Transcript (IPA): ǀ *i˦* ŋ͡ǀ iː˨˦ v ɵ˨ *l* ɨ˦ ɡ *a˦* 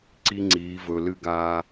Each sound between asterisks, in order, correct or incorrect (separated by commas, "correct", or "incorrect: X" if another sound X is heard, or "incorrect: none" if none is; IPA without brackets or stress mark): correct, correct, incorrect: aː˦